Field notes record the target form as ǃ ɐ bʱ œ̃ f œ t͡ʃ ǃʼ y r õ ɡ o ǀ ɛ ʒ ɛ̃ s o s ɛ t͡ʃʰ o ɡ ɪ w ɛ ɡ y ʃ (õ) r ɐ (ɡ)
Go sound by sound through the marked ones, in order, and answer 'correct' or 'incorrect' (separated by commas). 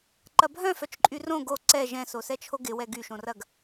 correct, correct